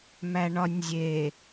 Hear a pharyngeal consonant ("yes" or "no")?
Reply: no